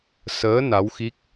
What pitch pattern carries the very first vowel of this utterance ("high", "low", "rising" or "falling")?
rising